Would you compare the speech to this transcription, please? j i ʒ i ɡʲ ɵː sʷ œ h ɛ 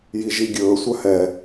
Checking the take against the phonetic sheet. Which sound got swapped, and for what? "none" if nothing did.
none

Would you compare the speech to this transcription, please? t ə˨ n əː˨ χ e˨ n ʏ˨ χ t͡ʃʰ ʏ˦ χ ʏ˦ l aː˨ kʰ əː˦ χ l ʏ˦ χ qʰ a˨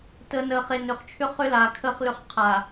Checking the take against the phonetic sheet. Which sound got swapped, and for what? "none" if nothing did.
none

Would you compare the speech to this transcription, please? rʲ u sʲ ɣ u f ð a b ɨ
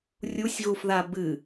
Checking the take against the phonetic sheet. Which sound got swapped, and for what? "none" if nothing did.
none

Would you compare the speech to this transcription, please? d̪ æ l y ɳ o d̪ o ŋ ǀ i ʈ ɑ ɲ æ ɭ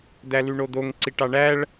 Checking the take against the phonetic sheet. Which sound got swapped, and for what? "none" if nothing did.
ɲ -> ɳ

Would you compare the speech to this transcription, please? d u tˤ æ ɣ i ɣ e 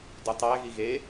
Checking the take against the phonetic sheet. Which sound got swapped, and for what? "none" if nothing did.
none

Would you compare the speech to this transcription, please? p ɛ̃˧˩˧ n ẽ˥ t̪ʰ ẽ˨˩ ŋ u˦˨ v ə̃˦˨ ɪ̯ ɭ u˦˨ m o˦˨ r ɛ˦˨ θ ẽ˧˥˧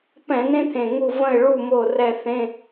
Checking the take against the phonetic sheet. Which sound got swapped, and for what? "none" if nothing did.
none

